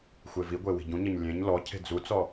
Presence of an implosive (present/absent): absent